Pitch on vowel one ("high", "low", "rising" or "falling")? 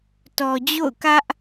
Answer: low